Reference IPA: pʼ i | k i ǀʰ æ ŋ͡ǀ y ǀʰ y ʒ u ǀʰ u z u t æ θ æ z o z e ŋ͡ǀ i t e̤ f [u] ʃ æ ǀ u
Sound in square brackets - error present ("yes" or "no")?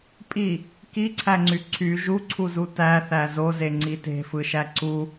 yes